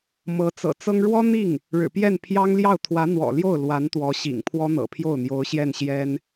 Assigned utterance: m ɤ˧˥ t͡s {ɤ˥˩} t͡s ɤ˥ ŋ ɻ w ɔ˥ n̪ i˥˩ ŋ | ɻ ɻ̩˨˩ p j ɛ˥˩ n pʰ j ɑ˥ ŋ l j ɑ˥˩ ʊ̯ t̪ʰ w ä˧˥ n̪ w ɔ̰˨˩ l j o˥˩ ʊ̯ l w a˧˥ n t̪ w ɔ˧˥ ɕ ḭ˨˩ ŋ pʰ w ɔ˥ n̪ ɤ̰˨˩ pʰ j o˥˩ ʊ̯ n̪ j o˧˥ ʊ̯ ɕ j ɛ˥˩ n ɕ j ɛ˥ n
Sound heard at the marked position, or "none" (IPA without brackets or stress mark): ɤ̰˨˩